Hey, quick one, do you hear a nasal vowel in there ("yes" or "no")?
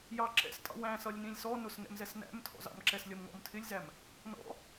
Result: yes